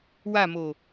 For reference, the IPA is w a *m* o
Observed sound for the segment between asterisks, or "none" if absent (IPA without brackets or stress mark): m